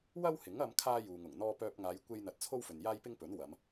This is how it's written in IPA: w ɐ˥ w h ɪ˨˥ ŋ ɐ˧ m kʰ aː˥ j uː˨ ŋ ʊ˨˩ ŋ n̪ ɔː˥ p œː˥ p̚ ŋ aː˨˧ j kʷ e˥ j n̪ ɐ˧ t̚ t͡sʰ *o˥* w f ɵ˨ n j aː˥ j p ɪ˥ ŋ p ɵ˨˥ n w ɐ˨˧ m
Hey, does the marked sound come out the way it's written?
yes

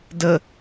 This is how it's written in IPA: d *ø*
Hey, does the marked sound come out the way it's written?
no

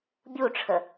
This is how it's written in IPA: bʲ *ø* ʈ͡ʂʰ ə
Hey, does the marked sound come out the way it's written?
no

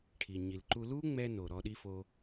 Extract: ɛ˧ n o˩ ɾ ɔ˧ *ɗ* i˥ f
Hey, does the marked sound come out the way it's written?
yes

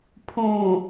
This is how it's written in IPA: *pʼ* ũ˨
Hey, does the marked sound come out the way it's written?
no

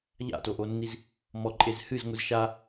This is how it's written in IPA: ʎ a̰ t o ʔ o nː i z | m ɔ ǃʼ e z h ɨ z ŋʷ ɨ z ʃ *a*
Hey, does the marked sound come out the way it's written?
yes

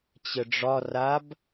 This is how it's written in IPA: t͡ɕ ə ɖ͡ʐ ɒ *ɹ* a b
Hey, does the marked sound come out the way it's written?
no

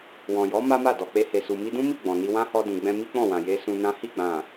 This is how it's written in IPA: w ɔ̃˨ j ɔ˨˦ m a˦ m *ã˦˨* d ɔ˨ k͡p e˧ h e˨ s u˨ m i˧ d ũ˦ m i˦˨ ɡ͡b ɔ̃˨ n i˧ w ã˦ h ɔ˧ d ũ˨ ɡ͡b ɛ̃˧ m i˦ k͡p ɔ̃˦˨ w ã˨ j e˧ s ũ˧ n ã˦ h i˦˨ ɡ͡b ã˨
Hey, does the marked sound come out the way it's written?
no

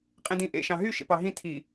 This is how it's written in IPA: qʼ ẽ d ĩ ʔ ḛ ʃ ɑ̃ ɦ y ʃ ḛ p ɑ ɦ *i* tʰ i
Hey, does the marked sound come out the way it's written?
no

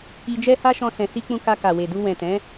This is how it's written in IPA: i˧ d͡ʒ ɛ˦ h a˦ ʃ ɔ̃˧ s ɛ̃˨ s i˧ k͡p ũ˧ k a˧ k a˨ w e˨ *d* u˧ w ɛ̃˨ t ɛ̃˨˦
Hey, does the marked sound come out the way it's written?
yes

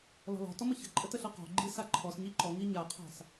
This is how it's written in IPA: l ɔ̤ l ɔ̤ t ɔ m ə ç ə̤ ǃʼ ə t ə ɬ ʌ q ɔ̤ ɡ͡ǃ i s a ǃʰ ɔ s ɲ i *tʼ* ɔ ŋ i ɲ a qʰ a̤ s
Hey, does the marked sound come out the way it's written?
no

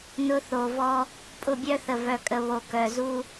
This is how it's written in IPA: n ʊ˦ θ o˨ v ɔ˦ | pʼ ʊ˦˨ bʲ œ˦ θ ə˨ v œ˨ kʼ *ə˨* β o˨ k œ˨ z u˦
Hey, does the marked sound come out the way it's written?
yes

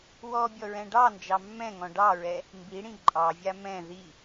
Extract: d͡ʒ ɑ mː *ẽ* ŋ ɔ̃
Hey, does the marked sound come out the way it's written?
no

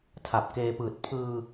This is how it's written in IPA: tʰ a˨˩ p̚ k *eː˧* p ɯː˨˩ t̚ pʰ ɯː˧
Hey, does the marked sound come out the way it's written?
yes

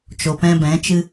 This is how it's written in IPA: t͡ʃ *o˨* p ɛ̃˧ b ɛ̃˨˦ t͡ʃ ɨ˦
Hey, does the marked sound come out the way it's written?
yes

